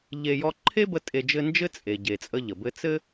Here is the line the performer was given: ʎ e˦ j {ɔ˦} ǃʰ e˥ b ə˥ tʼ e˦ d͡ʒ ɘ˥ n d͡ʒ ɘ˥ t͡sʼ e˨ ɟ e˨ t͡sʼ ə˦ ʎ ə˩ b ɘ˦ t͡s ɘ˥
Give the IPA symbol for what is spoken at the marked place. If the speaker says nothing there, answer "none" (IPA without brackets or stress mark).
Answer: ɔ˦